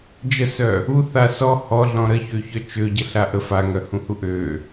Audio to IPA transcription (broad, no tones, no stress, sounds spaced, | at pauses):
d͡ʒ ə s œ | u θ a s ɔ h ɔ ɮ ɔ̃ ɾ ə ç ø ç œ t͡ʃ ø ɟ ə ɬ a ʔ ə f a ŋ œ h ũ h u ʔ ø